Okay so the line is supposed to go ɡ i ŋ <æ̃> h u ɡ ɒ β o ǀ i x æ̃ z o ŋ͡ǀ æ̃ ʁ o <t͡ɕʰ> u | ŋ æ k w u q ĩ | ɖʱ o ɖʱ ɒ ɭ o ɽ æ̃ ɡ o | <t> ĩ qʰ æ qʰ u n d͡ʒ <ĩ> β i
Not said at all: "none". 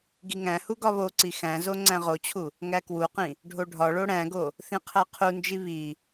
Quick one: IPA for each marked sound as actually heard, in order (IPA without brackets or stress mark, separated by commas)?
æ̃, t͡ɕʰ, θ, i